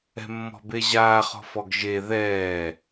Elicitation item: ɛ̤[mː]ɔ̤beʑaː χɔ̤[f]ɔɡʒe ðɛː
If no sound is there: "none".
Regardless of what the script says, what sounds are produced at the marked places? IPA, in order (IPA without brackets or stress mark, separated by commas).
mː, f